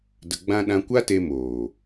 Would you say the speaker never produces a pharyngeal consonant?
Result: yes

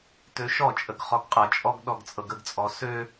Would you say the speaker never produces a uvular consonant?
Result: no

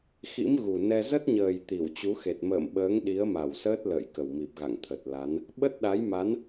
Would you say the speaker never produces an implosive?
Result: no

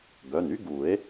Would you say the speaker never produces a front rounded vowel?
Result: no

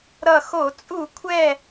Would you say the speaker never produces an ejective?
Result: no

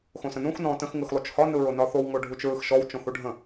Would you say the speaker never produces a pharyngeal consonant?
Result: yes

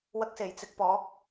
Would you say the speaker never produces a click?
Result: yes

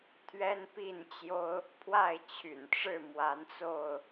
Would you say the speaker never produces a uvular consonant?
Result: yes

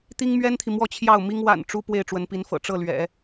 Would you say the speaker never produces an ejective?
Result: yes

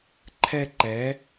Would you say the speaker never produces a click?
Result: no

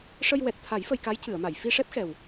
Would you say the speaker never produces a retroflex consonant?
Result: no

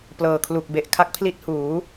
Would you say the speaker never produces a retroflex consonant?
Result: yes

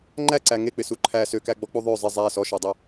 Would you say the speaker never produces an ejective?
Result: yes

